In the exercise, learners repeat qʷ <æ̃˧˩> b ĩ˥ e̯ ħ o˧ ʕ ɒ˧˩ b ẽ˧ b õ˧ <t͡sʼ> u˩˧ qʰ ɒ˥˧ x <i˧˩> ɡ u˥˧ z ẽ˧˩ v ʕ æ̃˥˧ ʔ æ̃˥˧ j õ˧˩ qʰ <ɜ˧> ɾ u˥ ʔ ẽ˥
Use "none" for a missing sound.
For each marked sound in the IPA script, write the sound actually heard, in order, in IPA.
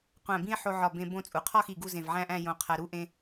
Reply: æ̃˧˩, t͡sʼ, i˧˩, æ˧

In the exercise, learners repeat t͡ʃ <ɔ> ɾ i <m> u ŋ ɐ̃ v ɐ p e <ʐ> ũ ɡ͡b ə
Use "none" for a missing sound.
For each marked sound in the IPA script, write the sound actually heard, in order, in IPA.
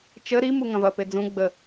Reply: ə, m, d͡z

